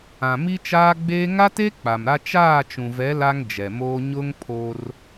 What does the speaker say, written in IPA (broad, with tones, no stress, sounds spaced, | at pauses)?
ã˨ m i˦ t͡ʃ aː˦ ɡ͡b eː˦ ŋ a˦ t e˦ k͡p a˨ m ɾ a˦ t͡ʃ aː˦˨ t͡ʃ ũ˨ v ɛ˨˦ l a˦ ŋ d͡ʒ ɛ˨ m oː˦ ɲ ʊ˦ ŋ pʰ o˦ r